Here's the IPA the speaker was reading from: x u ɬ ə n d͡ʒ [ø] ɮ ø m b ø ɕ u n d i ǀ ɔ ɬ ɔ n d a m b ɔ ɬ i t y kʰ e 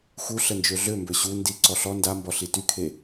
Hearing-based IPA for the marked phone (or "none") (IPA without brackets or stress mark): ø